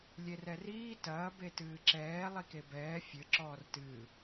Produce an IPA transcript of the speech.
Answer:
lʲerɛriː tɐː betɨːǁɛː lˠikebɛː fʲɘ ǁɔːrtɨː

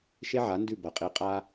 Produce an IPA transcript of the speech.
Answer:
ʃe˥ʕa˩˥ndʉ˥˩ bɐ˩qʼi˩˥ qʼa˧

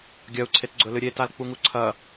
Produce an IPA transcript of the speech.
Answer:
ɡʲɐu̯ǀʰet ɡ͡ǀɵlɨɾʲe talk͡puŋuǀʰɐ

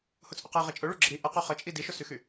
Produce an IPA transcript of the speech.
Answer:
hʊt͡sʼʊqe ʁet͡ʃʼʊɭy ɡ͡ǁəɾi ʔə qyχət͡ʃʼi diʃʊsyxy

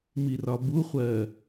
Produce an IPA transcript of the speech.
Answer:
mirɒbuχʷɜ

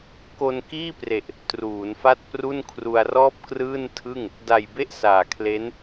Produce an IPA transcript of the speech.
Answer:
ko˧nkiː˥˩pre˨˩ʔ | truː˩˦nfa˥˩t̚pru˥˩n kʰru˧a̯rɔː˥˩p̚krɯː˥˩ntʰɯ˥˩ŋ | da˨˩jbe˥˩ʔ saː˨˩kʰle˦˥n

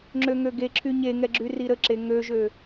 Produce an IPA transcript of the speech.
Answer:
ŋ͡ǁøŋøɡe ǁʰyɲeŋɛɡ͡ǁy riɾəǁe ŋøʒø

